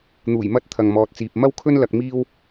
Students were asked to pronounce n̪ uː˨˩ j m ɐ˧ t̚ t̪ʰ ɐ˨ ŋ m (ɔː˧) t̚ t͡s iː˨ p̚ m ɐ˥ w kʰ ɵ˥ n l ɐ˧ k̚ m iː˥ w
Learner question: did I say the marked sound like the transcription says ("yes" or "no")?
no